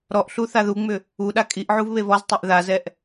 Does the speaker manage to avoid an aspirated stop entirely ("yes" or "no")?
yes